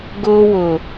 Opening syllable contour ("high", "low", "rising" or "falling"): high